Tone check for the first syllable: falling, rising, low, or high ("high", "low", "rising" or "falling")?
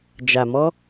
low